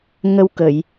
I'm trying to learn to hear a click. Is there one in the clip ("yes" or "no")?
no